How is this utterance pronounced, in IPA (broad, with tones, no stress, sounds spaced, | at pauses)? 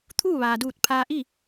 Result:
t̪ʰ uː˥˨ ʋ aː˩ d uː˧˩ t̚ pʰ aː˧ ʔ i˥˨